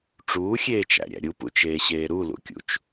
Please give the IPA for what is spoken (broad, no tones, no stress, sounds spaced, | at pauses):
ʈ͡ʂ uː xʲ eː t͡ʃ æ̰ ɾʲ æ̰ ɾʲ u p ṵ t͡ʃ eː ɕ eː ɾ u l ṵ kʲ ṵ t͡ʃ